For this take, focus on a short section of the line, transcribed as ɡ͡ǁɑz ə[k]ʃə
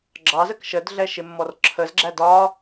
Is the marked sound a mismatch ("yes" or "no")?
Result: no